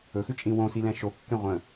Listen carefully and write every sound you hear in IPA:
ɵxʉt͡ʃʼĩ wõsilɛ̃ ʃokːẽ ʁʷə̃

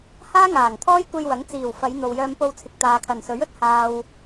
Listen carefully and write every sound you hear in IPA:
haː˥ŋaː˨˩ŋ t̪ʰɔː˥jkʷe˧j wɐ˨˥ŋt͡siː˨˩wfɐ˨˧j n̪o˨wjœː˧mpo˧wt͡sʰɪ˨k̚ t̪aː˨kʰɐ˨˩nsɵ˨˥ɥ ɵ˧t̚haː˨w

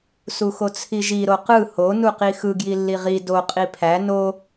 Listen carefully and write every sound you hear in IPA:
suxot͡sʰiʒi ɾoqɯ ho nuqixɯ ɡjilːiʁi do qʼipʰæ no

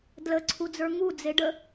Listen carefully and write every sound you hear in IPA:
dlə ǀʰud͡zə˞ŋu d͡zeɖə

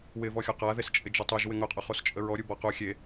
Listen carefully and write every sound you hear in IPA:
wɪvɔxʲɔ qaðes t͡ʃʼɪd͡ʒʊtˤuʒ wɪŋʊqʼʊ χost͡ʃʼəɹɔɾʲu bɔqu xʲe

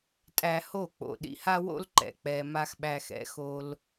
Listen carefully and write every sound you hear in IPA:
tʼæ˧ho˦˨ k͡po̰˨ ɗḭ˧ha˦wo̰˦lǃɛ̰˨ k͡pɛ˧ma˦x ɓæ˧xɛ̰˨˦ xo˧l

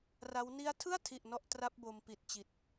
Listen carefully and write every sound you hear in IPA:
ra˦˥w ni˦˥a̯tʰɯ˥˩a̯tʰi˨˩ʔ nɔ˦˥ʔtra˦˥p̚bo˧m pi˨˩t̚t͡ɕi˨˩t̚

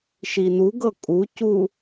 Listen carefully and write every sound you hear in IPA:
ʃinuɡɤ kʼucu

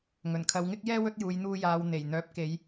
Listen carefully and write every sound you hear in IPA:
ŋɵ˨˩nkʰɐ˨˧wŋɪ˥k̚jɛː˥ wɵ˧t̚juː˨j n̪uː˧jaː˨w n̪e˨˩jn̪œː˨˥p̚ke˨˧j

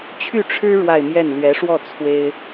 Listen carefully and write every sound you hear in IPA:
t͡ɕʰy˥˩ʈ͡ʂʰɻ̩˥ ɻwa˥˧ɪ̯mjɛ˥˩n lɥɛ˧˥ʂwɔ˥˩ t͡sʰwe˥ɪ̯

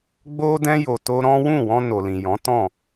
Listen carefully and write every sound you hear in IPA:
ɡ͡bo˦dɛ̃˦ jo˧to˦ ɾɔ̃˦ wũ˦˨wɔ̃˧no˨lĩ˨ jɔ̃˨˦tɔ̃˦˨

